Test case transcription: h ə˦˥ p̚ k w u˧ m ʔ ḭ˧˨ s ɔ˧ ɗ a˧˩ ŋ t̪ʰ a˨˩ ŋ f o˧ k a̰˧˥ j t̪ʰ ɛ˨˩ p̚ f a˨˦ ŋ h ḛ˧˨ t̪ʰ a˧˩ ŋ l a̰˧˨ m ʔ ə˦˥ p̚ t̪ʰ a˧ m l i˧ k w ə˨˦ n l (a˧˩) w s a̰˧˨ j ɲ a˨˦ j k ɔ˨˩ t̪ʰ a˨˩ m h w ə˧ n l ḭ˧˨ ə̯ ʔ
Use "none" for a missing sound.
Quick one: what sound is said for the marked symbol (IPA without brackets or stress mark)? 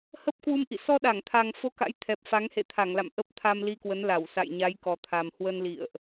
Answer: a˧˩